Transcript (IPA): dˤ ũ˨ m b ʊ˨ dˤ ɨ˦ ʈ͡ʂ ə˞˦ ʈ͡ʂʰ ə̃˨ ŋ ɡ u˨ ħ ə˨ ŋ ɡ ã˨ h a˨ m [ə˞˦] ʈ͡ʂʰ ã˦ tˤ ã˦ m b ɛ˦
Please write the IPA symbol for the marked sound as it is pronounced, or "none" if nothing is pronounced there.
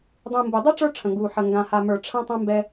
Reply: ə˞˨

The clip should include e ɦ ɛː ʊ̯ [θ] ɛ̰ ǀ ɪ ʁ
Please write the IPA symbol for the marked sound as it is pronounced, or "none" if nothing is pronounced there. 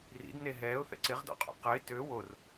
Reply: θ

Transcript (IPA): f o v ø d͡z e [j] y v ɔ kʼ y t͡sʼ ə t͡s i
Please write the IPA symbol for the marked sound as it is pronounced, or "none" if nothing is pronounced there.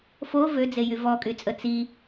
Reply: j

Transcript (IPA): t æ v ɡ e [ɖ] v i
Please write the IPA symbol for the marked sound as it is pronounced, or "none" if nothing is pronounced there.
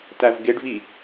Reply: ɖ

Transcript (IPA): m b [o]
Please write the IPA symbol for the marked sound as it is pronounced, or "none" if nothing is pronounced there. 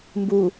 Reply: u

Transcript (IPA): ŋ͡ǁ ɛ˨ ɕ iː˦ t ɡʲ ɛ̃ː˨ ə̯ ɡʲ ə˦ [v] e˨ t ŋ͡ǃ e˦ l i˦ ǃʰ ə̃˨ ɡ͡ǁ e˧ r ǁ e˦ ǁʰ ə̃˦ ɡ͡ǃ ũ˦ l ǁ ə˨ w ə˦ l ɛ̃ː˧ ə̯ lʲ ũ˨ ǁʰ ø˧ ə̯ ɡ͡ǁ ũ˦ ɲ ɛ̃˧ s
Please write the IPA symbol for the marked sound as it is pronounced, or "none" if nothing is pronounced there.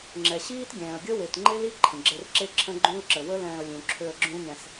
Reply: w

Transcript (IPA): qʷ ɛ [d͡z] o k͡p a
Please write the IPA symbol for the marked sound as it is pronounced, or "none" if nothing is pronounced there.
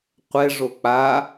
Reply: ʐ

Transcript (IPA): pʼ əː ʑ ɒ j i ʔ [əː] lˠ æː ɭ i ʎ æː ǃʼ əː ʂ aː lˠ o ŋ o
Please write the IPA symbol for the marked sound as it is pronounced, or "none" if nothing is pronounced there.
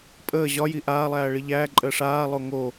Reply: aː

